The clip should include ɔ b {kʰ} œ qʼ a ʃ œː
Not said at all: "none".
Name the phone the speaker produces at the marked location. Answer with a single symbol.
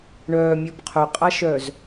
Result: qʰ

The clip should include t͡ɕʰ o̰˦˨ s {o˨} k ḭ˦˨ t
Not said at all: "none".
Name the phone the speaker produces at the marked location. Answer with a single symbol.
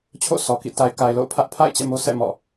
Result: ɔ˨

